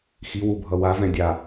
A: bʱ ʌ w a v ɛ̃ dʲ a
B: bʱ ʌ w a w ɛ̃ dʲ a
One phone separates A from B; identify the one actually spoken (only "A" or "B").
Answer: A